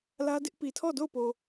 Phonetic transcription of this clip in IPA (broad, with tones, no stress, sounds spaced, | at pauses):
l ä˦ d ɪ˦ ʔ p i˨ tʰ ɔ˦˨ d o˦˨ ʊ̯ p o˨